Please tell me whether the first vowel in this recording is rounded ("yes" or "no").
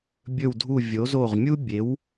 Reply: yes